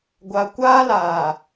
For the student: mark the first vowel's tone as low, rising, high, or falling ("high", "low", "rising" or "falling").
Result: low